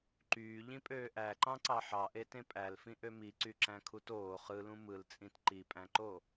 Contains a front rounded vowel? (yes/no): yes